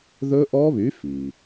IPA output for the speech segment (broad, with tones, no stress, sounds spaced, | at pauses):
ð ɵ˦˥ ʔ ɔ˦˥ β y˨˥ f i˩